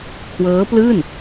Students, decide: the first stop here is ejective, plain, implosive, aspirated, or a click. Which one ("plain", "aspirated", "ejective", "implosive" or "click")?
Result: aspirated